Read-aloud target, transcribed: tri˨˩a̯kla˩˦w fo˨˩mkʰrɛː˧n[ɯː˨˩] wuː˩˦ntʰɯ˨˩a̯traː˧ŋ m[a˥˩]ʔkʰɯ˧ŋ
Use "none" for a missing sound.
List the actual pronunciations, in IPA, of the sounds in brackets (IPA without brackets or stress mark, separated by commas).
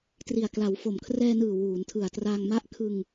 ɯː˨˩, a˦˥